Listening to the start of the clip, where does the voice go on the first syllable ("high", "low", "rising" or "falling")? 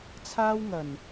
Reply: high